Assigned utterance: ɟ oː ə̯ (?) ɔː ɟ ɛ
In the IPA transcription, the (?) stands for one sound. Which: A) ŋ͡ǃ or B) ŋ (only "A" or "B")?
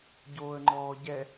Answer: A